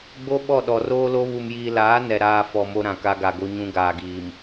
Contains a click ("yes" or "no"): no